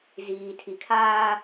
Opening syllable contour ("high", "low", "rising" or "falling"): low